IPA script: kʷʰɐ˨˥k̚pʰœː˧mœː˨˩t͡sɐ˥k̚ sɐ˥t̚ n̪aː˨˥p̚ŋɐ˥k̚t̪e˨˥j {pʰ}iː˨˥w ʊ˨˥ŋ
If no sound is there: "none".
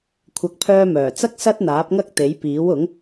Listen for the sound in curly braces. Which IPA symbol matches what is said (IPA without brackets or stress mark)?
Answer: p